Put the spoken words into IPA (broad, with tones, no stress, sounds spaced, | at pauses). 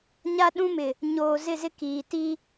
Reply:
ɲ a˦ ɗ ũ˦ m ɪ˨ | ɲ oː˨ z ɪ˦˨ z ɪ˦ k iː˨ t i˦